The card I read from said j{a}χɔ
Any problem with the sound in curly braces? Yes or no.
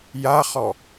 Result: no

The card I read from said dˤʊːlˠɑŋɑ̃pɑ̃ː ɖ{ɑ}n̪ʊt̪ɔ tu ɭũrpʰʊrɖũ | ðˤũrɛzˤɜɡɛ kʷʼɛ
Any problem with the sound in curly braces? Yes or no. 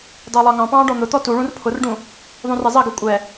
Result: yes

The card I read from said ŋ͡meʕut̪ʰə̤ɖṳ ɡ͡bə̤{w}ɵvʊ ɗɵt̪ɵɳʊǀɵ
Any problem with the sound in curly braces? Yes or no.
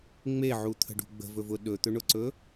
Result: yes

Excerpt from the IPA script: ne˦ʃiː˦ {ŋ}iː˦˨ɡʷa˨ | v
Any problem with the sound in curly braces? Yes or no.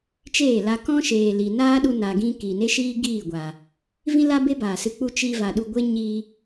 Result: yes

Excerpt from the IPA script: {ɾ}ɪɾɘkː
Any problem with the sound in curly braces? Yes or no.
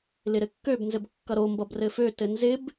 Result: yes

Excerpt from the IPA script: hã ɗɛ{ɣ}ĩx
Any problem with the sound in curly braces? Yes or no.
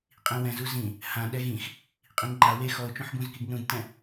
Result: no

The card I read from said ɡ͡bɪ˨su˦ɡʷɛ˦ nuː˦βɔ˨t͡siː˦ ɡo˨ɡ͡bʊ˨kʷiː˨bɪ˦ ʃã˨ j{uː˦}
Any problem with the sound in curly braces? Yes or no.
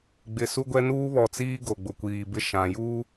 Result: no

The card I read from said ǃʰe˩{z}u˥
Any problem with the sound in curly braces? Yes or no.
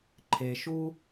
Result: yes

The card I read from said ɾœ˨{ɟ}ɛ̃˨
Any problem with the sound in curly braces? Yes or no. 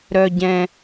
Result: no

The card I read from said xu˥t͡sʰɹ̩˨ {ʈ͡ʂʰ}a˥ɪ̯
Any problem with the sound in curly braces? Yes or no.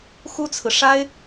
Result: yes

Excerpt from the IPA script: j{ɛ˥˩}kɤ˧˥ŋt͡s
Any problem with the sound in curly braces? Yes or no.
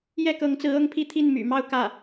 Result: no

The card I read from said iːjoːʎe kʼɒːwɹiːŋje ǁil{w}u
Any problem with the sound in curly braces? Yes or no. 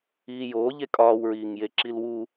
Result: no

